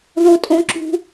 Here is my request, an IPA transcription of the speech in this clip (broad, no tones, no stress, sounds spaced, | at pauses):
ð o tʼ õ ǁ ṳ